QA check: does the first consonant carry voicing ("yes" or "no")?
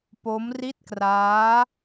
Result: no